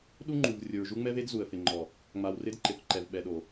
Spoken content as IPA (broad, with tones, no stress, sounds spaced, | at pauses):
ɗ u˦ ŋ͡ǃ u˨ v rʲ ʊ˨ ɹ ʒ u˦ ŋ͡m ɛ˦ v e˦ d z u˨ ə̯ f ɪ˨ ŋ͡ǃ ɔ˨ | ŋ͡m a˨ w r ɪ˦ d ǃ ɪ˨ θ ǃ ɛ˨ v ɓ ɛ˨ ɗ o˨